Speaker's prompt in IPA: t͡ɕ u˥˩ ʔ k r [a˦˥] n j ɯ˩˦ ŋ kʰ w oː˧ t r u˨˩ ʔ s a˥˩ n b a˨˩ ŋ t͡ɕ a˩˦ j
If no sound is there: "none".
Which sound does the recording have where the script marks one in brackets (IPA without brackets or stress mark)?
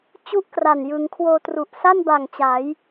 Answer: a˨˩